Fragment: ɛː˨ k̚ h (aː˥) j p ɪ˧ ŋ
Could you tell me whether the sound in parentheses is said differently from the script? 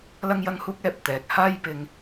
no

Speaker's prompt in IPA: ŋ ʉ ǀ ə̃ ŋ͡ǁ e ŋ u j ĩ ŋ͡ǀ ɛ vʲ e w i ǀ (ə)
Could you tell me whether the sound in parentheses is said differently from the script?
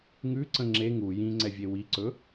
yes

